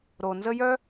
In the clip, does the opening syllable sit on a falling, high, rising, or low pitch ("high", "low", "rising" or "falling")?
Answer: low